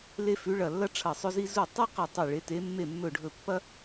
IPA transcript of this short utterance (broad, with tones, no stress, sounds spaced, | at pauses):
l e˥ f ʉ˧˥ ɭ ɐ˦˨ lː ɐ˥ ʈ͡ʂʰ ɐ˦˨ sˤ ɵ˥ z i˥ z u˦˨ tˤ e˥ q ɐ˦˨ tˤ i˦˨ ɭ e˧˥ t e˧˥ mː e˦˨ mː ɵ˦˨ ɖʱ ɵ˦˨ pː ɐ˥